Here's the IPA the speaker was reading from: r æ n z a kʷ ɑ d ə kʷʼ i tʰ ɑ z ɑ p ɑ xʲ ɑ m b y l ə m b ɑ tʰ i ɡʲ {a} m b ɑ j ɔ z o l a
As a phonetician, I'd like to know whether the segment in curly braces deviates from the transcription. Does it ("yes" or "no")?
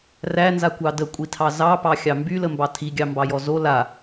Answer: yes